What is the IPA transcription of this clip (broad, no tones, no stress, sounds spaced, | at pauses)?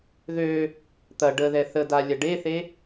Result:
ð ø | t̪ ɐ ɖ ə ð ɛ θ ə d a lʲ ɐ ɖ e θ e